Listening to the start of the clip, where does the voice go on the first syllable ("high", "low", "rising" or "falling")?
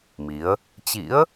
rising